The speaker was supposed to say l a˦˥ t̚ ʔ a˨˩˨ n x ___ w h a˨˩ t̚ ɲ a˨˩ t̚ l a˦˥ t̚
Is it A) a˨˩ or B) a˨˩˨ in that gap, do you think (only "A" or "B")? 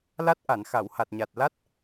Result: B